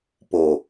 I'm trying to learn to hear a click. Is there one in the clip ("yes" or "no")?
no